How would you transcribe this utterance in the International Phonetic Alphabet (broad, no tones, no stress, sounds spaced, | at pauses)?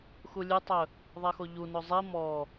x u lʲ ʉ tˤ ɵ | ðˤ e x o ʎ u n o zˤ i m ɔ